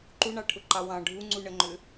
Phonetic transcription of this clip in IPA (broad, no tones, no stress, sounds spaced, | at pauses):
ǃ u ɳ ɑ ʈʰ ʊ ǃ ɑ w ɑ̃ ɖʱ u ŋ͡ǀ u ɳ ə ŋ͡ǃ ʏ